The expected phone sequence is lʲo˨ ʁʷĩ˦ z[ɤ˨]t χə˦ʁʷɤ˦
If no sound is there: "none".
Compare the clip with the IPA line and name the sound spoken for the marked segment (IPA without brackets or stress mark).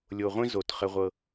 o˨